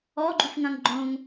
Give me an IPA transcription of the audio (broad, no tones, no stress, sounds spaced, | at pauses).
ɔ ɡ͡ǃ u f ŋ ɐ̃ ŋ ɡ͡ǃ õ ŋ